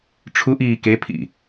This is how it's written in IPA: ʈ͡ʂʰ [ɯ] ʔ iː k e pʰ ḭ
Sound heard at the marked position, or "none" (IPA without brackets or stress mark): u